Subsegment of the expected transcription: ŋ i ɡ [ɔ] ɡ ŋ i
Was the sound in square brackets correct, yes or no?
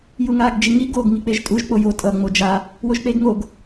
no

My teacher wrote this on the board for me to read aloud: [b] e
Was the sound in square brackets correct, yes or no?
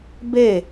yes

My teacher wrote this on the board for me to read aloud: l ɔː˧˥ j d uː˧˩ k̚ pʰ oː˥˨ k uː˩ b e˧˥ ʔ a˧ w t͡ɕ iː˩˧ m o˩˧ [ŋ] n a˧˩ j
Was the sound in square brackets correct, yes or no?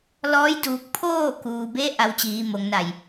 yes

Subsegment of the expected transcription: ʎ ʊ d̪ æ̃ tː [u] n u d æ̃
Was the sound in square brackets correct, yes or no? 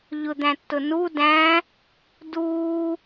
no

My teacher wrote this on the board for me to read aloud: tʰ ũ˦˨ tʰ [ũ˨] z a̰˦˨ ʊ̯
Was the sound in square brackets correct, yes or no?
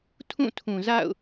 yes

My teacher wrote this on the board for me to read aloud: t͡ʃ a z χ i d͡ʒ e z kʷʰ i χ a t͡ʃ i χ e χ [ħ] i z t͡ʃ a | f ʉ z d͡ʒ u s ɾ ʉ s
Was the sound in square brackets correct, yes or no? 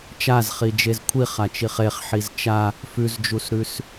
yes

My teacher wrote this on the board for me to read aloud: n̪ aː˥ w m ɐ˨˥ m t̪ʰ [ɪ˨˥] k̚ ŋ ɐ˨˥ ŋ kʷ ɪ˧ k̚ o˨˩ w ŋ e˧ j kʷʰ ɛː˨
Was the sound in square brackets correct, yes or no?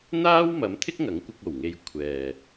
no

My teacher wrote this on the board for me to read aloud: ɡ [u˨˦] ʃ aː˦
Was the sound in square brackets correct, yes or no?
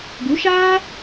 yes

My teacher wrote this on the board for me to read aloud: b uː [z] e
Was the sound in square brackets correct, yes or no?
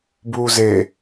yes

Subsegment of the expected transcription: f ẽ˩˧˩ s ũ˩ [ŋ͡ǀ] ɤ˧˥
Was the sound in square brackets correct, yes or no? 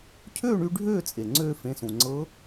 yes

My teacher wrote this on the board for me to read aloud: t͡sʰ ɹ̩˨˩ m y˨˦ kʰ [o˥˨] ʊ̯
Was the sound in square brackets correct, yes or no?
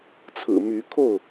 yes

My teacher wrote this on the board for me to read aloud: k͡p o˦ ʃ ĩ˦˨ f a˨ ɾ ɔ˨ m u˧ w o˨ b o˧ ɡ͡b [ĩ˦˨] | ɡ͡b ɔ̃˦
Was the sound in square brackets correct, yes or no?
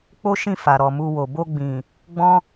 no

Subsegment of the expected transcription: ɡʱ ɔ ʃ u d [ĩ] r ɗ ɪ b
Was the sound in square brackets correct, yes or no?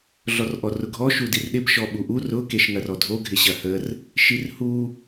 no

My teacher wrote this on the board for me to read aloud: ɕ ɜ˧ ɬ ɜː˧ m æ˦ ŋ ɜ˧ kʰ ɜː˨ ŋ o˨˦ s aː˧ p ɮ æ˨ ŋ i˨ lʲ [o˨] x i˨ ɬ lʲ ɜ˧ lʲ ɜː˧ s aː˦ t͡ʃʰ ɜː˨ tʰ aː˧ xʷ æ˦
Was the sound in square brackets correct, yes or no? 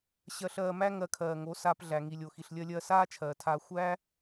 yes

